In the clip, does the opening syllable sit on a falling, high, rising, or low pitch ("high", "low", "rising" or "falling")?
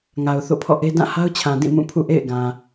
low